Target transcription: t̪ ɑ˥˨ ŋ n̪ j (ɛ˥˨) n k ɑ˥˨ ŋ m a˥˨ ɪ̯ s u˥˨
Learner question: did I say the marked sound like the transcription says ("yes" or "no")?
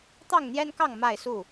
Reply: no